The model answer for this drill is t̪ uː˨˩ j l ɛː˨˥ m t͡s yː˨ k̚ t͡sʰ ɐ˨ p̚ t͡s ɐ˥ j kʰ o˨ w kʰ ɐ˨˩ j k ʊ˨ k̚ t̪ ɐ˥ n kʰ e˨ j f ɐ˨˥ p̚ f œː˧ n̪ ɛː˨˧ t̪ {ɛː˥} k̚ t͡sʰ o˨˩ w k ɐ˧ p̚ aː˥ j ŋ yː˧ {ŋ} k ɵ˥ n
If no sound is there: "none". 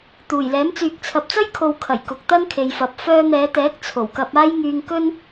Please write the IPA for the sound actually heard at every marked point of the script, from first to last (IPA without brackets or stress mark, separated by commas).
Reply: ɛː˨˥, ŋ